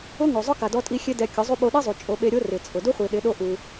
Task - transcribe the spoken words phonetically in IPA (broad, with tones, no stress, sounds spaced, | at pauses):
ʊ˦ ŋ o˨ zˤ ʊ˦ k a˨ d ɔ˧ tʼ i˧ xʲ e˦ d ɛ˧ kʲ ʊ˨˦ zˤ u˦ ɓ o˧ ɗ i˦ zˤ u˨ t͡ʃʼ o˧ ɓ e˧ ɾʲ o˦ r ɪ˨ t͡sʼ ʊ˨ d u˦ χʷ i˨ ɗ ɪ˨˦ ɗ o˦ ʔ u˧